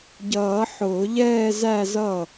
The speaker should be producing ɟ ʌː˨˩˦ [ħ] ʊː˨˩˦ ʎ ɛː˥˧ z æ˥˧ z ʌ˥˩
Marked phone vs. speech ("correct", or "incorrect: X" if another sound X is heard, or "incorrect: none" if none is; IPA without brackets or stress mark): correct